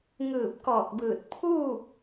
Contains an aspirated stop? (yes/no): yes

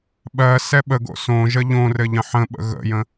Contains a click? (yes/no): no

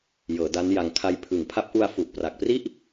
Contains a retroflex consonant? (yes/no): no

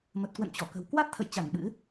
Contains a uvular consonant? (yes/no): no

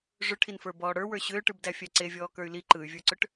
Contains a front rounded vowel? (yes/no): yes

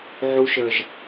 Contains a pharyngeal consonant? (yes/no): yes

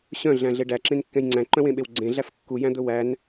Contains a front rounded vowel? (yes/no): yes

